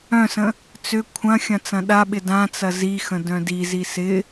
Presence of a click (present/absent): absent